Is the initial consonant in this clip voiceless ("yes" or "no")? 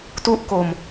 yes